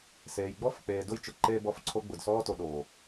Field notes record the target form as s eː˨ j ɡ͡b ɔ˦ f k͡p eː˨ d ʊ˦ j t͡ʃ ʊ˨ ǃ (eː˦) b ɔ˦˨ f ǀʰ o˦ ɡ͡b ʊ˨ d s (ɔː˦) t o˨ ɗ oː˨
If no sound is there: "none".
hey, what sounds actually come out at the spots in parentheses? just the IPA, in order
eː˦, ɔː˦

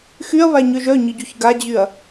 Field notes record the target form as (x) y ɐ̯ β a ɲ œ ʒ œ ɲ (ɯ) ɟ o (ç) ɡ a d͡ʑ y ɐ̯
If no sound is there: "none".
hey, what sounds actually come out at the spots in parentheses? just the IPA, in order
x, ɯ, ç

